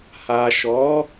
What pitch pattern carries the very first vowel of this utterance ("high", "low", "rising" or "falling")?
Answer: low